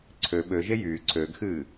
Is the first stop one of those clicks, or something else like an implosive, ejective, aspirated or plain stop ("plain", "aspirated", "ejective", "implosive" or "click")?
click